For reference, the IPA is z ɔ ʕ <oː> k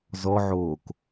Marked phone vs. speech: correct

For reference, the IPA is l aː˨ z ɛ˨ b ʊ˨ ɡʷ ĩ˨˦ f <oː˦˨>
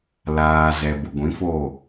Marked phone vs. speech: correct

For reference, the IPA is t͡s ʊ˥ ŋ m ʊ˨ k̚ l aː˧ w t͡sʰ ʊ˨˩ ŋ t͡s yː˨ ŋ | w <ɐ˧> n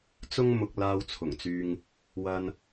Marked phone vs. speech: correct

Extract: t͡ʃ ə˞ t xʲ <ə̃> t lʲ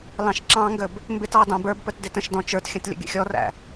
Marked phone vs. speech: correct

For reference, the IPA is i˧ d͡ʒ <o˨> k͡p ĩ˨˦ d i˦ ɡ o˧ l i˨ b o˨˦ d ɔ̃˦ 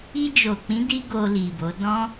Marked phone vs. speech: correct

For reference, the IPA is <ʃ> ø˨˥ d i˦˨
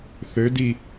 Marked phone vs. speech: incorrect: θ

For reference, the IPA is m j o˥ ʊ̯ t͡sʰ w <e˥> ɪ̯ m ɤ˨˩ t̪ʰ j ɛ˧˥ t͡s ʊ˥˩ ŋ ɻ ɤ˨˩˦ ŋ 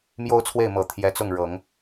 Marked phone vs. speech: incorrect: e˥˩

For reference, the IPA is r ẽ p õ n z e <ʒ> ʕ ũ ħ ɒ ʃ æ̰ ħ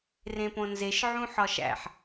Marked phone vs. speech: incorrect: ʃ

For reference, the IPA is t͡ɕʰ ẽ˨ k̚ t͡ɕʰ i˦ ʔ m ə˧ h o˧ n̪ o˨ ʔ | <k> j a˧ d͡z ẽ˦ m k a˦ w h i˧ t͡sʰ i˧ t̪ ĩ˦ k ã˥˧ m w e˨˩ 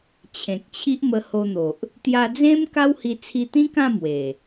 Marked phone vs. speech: incorrect: t̪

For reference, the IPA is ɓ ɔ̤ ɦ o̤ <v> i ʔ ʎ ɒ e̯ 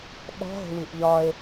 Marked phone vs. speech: incorrect: w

